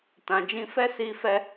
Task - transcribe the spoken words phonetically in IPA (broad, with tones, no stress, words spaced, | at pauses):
tã˨d͡ʒĩ˧ fɛ˦si˧ fɛ˧